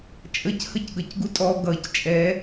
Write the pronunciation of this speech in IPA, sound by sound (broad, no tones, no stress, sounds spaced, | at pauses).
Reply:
t͡ʃʼ ə c h ə c ɡ ʌ c ɡ u tʼ ɔ ɡ ʌ c t͡ʃʼ ɛ